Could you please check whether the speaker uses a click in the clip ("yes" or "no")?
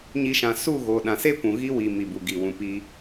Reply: no